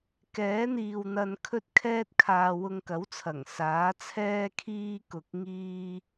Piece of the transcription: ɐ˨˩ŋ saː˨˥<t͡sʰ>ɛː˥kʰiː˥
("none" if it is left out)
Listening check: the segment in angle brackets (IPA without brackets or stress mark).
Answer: t͡sʰ